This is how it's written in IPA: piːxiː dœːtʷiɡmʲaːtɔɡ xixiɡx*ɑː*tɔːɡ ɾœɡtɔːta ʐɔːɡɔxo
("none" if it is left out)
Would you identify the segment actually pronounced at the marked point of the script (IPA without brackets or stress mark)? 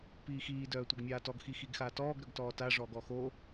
aː